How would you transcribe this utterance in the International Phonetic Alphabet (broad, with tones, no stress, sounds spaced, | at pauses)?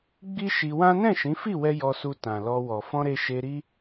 ɡ͡b i˦ ʃ i˧ w ã˦ n ɛ̃˦˨ ʃ ĩ˨˦ f i˦˨ w ɛ˧ j ɔ˧ s u˧ t ã˨ l ɔ˧ w ɔ˨ f ɔ̃˧ ɾ e˧ ʃ e˧ ɾ i˦